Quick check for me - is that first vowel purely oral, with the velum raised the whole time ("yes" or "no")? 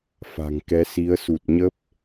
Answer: yes